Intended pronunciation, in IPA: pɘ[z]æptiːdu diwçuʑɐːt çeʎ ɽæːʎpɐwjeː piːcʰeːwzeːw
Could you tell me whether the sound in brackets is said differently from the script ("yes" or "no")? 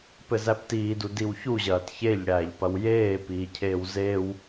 no